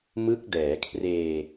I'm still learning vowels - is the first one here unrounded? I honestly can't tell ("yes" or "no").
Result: yes